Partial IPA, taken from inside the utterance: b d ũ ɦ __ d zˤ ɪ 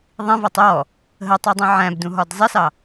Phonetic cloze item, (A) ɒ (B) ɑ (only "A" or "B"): A